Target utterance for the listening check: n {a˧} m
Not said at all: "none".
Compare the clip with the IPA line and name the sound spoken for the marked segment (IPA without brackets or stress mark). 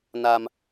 a˧